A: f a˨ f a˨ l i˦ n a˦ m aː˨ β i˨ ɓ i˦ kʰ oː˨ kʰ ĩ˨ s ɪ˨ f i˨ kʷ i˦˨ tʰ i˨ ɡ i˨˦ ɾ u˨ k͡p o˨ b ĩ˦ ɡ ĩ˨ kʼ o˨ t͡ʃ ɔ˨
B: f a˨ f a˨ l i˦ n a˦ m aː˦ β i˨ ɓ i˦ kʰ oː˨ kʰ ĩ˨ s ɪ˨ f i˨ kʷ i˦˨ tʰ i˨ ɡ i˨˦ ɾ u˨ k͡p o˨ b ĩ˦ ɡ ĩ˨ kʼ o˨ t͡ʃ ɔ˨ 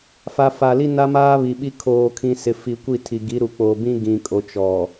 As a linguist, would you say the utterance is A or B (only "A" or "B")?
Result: B